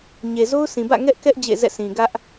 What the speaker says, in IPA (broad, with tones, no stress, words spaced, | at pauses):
ɲe˨zo˦ʊ̯sĩ˨bä̰˦˨ ŋɛ˦ʔkɛ˦ʔ d͡ʑḛ˦˨zɛ̰˦˨ sĩ˨ ɡä˦ʔ